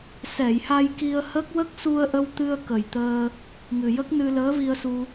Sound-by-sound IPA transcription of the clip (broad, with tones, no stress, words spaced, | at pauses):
sɛ˨˩˨jha˧jki˧ə̯hə˦˥k̚ wə˦˥k̚su˧ə̯ʔə˧wt̪ɨ˧ə̯ kə˨˩jt̪əː˧ | ŋɨ˨˩jə˦˥k̚nɨ˧ ləː˧˥vi˧ə̯su˧